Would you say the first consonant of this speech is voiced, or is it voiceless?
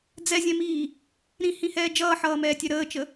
voiced